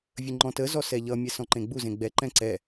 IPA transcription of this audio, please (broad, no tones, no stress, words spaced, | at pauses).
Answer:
vʲəŋ͡ǃɔ̃təzɔ sɛʎʌmʲɛ sɔ̃ǃẽɡ͡buzẽ ɡ͡bɛǃɛ̃ ǀɛ